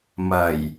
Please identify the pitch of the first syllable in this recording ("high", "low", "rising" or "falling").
low